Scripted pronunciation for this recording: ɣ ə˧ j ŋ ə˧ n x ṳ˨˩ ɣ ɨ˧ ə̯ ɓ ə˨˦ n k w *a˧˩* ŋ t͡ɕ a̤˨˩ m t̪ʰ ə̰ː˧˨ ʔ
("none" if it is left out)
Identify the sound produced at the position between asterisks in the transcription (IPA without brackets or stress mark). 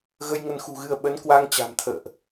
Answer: a˧